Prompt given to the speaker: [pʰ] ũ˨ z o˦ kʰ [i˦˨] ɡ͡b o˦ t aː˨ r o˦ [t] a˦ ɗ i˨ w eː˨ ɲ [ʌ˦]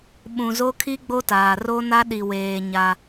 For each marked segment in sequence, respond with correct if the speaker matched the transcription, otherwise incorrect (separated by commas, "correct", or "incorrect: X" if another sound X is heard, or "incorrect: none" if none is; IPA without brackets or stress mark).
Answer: incorrect: ɓ, incorrect: i˦, incorrect: n, incorrect: a˦